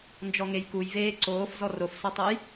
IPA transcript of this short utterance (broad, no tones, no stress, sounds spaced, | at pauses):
n d͡ʒ ɔ ŋ e j k u j v eː ǀ oː f z ɔ r o f s ɔ tˤ ɤ j